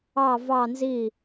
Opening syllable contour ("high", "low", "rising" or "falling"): falling